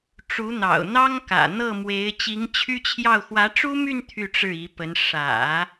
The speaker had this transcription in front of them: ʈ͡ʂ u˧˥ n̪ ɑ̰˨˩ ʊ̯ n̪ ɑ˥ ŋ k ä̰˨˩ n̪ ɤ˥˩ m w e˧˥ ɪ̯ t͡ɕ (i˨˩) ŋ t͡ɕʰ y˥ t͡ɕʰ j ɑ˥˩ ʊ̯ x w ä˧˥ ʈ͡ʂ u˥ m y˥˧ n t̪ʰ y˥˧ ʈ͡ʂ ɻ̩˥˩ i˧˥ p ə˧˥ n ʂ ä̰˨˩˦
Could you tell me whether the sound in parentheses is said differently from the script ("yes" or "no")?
yes